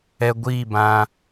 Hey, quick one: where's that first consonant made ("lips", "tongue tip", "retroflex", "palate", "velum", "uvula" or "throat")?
velum